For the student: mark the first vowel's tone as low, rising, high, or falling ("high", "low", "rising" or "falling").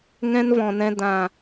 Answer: high